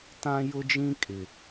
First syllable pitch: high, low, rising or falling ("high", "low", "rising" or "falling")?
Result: high